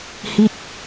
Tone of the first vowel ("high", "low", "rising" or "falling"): falling